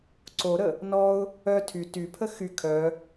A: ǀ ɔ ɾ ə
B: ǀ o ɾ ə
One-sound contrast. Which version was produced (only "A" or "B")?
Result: B